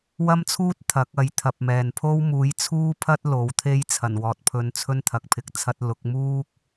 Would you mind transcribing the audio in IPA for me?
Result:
w ɐ˥ m t͡sʰ uː˥ t̚ t̪ʰ ɐ˨˥ k̚ ɐ˨˥ j t̪ʰ ɐ˨ p̚ m ɛː˨ n pʰ o˥ w m uː˨˥ j t͡sʰ uː˥ pʰ ɐ˥ t̚ l o˨˥ w t̪ʰ e˥ j t͡sʰ ɐ˨˩ n w ɔː˨ t̚ pʰ ɵ˧ n t͡sʰ ɵ˥ n t̪ʰ ɐ˨ k̚ pʰ ɪ˨ k̚ t͡sʰ ɐ˥ t̚ l ʊ˨˥ k̚ m uː˥ k̚

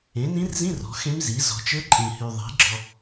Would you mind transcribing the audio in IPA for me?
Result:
ẽ˩˥ n ĩ˧˥ r z ĩ˧˥˧ r ɔ̤˩˥ x ẽ˧˥ m z i˩˥ z ɔ̤˨ t͡ʃ ɘ˧˥ ǃʼ ĩ˨ h y˨ ðˤ i̤˩˥ ɡ͡ǁ ɔ˨

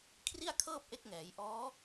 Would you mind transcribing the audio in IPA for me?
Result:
kʰ r i˥˩ a̯ kʰ ɤː˥˩ p̚ ʔ e˦˥ k̚ ŋ ɛː˩˦ j ʔ ɔː˦˥

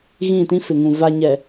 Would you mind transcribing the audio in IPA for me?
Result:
ɣ ĩ˦˨ t ĩ˦ f ɪ˨ ŋ ũ˨ v a˨ ɲ ɛ˨

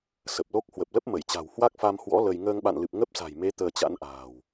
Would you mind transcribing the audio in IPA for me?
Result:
s ə˨˩ p̚ l o˦˥ k̚ h w ə˨˩ p̚ l ə˦˥ p̚ m ə˧˩ j t͡ɕ a̤˨˩ w h w a˦˥ k̚ f a˧ m h w ɔ̰˧˥ l ə˧ j ŋ əː˧ ŋ ɓ a̰˧˨ n l ɨ˨˩ p̚ ŋ ə˦˥ p̚ s a̤˨˩ j m e˨˦ t̪ əː˧ t͡ɕ a̰˧˥ n ʔ a̤ː˨˩ w

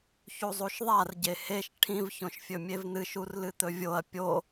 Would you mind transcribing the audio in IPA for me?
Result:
ç u zˤ u ʃ ðˤ a r ɟ e h e ʃ ʈʰ ĩ v ç õ ʃ fʲ ɵ mʲ e v n̪ ɨ ʃ u r l ɨ t̪ ɵ vʲ o ɐ̯ pʲ o

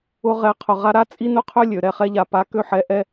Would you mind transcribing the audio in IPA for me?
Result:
ʊ˧ ʁ ɛ˨˦ qʰ ʊ˨ ʁ a˧ ɾ a˦ t͡sʼ i˦ n ʊ˦ qʰ ø˦ lʲ ø˨ ɾ ɛ˨ χ ɛ˧ ʎ a˨ p a˨˦ k ø˧ ħ ɛ˨˦ ʔ ɛ˧

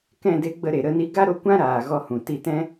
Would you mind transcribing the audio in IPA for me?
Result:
k ɛ̃˦˨ d e˧ ɡ͡b ə˧ ɾ e˨ ɾ ə˦˨ n i˧ ɡ a˦ ɾ o˧ kʷ ã˦ ɾ aː˨ ɣ ɔ˧ h ũ˨ t i˧ t ɛ̃˦

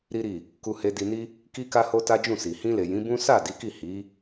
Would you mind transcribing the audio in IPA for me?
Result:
ɾ i˦ ɾ i˦˨ | k u˧ h e˧ d i˧ n i˦ | k i˦ k a˦ h o˦ t a˦ d͡ʒ ũ˦˨ s i˨ h ĩ˧ l e˨ j ĩ˨˦ b ũ˦ s a˦˨ d i˨˦ k i˦˨ h i˨˦

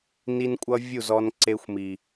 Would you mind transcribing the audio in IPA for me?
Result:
n i˦ n kʷʼ ʌ˦ vʲ u˦˨ z ɔ˧ n ǀ e˧ xʷ m i˨

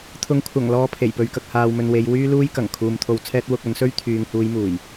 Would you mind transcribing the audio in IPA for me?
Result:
t̪ʰ ʊ˨˥ ŋ kʷʰ ɐ˨˩ ŋ l ɔː˨˧ pʰ e˨˩ j p ɵ˨ ɥ k ɐ˨ k̚ h aː˨ w m ɵ˨ n w e˨˧ j w yː˥ l uː˥ j k ɐ˨˩ ŋ kʰ uː˨ m t̪ʰ o˧ w t͡sʰ ɛː˥ t̚ w ʊ˧ k̚ ɐ˨˥ n s ɵ˥ ɥ t̪ʰ yː˨ ŋ h uː˨˧ j m uː˨˩ j

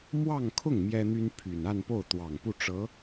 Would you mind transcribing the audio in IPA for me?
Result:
m w ɑ˥˧ ŋ kʰ ʊ˥˩ ŋ m j ɛ˥ n̪ y˥ n pʰ y˨˩ n a˥˧ n p o˥˩ ʊ̯ t̪ w ɑ˨˩ ŋ p u˥˩ ʈ͡ʂ ɤ˧˥

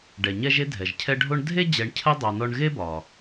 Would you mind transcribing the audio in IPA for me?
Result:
ɖ ɛ˩ ɲ ɛ˦ ʒ e˦ dʱ ɛ˩ ʒ cʰ ɛ˦ ɖʱ o˥ ɳ dʱ e˥ d͡ʑ ɛ˨ ɳ cʰ ə˥ dˤ ɛ˨ n ɔ˦ ɳ ɣ e˥ b ɒ˩

